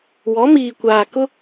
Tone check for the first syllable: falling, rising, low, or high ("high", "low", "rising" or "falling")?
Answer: rising